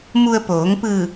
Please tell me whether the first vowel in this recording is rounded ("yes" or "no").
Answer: yes